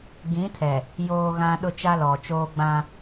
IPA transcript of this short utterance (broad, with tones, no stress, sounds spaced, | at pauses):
ɡ ĩ˨˦ tʰ ɛ˨ | j oː˨ ɣ ã˨ ɗ ʊ˦ t͡ʃ a˦ l ɔ˨ t͡ʃ oː˦ ɡ͡b ã˦